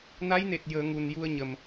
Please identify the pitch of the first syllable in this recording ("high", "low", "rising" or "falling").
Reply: rising